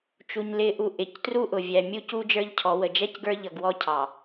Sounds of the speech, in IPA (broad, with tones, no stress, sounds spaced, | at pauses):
t͡ʃ u˨ ɲ l ɪ˨˦ ʔ u˨ ʔ ɪ˨ c t r u˦ ʔ ʊ˨ vʲ æ˨ mʲ u˦ c u˦ d͡ʒ ə˞˦ ʎ cʰ ɔ˨˦ w ə˨ d͡ʒ ɛ˦ c ɡ ə˞˦ ʎ ʌ˨ ɡ w ɔ˦ cʰ ɑ˨